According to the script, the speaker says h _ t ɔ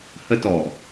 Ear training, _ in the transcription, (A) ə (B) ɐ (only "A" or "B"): A